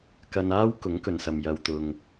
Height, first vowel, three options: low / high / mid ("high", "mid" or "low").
low